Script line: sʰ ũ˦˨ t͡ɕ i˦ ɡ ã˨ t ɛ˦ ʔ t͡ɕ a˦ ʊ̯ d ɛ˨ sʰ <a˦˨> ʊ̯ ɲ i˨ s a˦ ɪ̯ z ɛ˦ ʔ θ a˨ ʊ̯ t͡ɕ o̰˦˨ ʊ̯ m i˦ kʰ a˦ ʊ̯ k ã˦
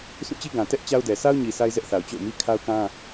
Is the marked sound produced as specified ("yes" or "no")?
no